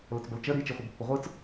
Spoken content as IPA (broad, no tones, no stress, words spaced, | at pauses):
lət͡sbəlt͡ʃə ɾi t͡ʃiχʷibpːʊʁʷɯt͡s